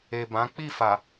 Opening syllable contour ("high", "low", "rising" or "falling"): low